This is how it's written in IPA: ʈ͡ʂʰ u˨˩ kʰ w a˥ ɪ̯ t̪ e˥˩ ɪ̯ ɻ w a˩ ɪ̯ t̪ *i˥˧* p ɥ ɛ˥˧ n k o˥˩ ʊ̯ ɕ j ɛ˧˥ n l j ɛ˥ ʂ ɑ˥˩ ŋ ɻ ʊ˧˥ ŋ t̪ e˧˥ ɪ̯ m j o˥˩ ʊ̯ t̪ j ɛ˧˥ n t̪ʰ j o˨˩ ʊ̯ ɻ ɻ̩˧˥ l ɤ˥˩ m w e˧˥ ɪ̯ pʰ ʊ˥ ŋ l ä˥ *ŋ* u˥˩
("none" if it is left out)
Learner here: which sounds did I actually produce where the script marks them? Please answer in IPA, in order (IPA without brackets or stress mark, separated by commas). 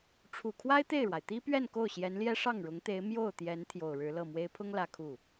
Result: i˥, kʰ